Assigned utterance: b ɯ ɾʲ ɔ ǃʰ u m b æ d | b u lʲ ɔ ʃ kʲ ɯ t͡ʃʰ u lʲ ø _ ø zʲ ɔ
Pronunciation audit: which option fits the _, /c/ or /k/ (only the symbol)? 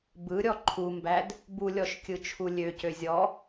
c